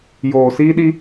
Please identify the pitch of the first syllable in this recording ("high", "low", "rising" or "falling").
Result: low